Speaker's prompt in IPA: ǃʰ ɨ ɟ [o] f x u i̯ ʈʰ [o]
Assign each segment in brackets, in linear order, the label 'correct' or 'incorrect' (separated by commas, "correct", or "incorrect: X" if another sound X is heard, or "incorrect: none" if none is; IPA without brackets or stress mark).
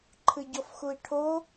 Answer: incorrect: ɔ, correct